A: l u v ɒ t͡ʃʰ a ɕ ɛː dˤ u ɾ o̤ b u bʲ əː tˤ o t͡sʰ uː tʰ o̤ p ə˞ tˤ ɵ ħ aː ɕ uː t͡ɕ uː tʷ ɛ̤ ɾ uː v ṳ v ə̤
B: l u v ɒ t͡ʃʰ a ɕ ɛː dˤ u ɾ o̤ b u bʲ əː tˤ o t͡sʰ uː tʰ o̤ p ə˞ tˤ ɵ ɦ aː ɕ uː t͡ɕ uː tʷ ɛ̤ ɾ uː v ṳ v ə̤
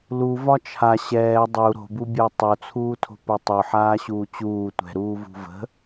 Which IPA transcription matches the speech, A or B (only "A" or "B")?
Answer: A